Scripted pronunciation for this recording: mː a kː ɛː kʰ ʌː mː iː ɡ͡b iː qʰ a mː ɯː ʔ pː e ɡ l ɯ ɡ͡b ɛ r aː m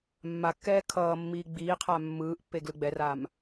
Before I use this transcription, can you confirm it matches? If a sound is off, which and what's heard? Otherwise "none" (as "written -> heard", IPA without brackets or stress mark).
none